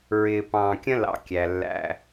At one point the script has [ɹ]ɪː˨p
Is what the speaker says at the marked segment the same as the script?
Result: yes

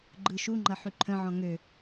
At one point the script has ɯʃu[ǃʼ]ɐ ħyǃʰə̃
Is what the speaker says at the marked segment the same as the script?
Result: no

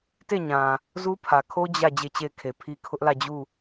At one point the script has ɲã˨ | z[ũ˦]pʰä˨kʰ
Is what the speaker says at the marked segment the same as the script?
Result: no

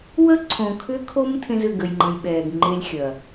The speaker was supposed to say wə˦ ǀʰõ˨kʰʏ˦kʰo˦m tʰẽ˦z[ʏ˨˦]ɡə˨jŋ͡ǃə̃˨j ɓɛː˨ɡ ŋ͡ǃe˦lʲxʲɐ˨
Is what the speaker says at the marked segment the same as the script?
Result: no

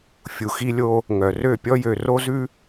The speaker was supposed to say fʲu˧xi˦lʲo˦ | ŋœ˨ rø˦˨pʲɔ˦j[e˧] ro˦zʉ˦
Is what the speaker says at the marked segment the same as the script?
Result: no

